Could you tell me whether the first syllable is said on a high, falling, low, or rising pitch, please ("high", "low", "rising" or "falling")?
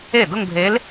falling